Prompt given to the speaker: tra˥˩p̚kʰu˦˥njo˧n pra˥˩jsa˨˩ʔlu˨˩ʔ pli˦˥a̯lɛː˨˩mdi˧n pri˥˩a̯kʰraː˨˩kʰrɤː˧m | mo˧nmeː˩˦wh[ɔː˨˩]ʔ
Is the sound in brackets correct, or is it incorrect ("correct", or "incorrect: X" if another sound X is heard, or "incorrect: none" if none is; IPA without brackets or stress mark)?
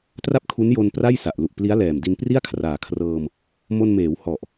incorrect: ɔ˨˩